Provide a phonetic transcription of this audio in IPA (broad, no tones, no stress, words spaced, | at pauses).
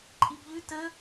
ǃʼibʎʉ tə